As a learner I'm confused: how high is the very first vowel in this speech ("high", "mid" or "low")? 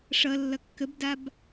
mid